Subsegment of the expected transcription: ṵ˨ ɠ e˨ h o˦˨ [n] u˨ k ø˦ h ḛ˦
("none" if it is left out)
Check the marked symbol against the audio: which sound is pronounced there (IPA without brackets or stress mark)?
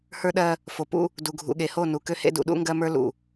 n